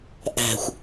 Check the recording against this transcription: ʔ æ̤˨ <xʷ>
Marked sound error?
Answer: no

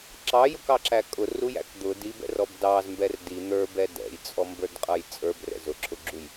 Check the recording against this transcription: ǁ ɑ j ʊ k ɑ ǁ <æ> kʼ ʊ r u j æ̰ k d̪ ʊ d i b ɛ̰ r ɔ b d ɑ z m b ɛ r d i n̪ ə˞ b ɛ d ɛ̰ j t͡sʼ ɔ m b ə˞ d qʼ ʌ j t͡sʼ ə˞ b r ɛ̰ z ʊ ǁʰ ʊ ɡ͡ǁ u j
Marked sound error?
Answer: no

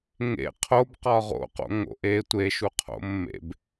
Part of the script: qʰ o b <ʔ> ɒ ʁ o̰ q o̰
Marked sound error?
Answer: yes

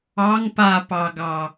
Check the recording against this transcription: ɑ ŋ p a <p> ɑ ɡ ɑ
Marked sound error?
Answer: no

